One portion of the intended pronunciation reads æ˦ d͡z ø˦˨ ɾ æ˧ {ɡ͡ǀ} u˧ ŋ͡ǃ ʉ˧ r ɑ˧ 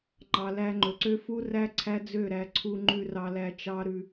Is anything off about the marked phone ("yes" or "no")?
yes